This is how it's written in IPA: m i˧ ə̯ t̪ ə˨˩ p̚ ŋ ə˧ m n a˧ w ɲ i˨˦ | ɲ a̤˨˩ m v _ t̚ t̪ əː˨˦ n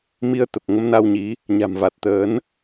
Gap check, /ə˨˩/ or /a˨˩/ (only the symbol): a˨˩